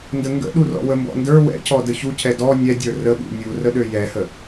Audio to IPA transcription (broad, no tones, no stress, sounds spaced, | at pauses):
n d ə ŋ ɡ ə̰ ɗ u r ɔ̰ w ə m b ɔ̰ n d ə˞ w ɛ̰ c ɔ d ə ç u c ɛ d ɔ nʲ ɛ dʲ ə˞ r ə ɓ ṵ nʲ u r ə ɗ ø j ɛ h ə